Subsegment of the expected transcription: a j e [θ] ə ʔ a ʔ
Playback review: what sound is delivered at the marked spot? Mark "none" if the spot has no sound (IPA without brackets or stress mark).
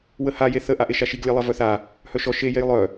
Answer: θ